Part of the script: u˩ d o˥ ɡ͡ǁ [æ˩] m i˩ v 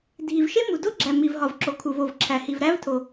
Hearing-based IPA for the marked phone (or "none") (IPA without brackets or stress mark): æ˩